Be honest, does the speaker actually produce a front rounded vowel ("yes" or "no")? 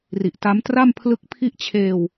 no